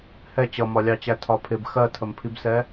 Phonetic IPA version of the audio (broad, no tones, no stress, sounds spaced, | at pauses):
h ɛ t͡ɕ ʌ m ɒ lʲ ɑ t͡ɕ æ tʰ ɒ pʰ ɪ b x ɜ tʰ ə m pʰ i b s ɛ